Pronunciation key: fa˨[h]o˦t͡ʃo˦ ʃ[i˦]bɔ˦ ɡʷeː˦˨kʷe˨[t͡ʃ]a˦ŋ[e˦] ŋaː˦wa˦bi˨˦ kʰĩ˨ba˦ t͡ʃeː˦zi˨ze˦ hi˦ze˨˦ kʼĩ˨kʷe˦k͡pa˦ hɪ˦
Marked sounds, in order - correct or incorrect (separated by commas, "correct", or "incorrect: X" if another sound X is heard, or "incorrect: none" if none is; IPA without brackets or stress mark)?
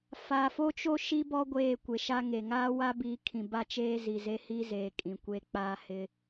incorrect: f, correct, incorrect: ʃ, incorrect: e˨